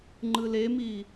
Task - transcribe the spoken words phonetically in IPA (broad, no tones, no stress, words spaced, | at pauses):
ŋ͡ǃɯlemi